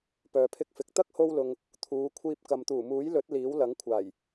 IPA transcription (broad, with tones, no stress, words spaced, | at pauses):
pœː˨pʰɪ˧k̚fɪ˨k̚ t̪ɐ˥k̚ho˧wlʊ˨ŋ | t̪ʰuː˨˧kʷʰiː˧p̚ kɐ˨mt̪uː˨˩muː˨˥jlɵ˨˥t̚ liː˨˥wlɐ˨˥ŋkʷʰaː˨˩j